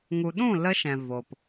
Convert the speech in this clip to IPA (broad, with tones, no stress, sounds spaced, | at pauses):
ŋ u˨ ɗ ũ˦˨ l ə˧ ʃ ɛ̃˨ v o˨ p